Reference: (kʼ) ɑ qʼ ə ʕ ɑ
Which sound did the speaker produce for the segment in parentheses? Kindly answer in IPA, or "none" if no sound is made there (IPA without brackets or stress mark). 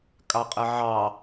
kʼ